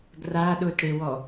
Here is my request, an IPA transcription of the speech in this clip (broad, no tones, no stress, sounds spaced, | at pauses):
ɡ r a ɗ ʊ t ɽ e w ɔ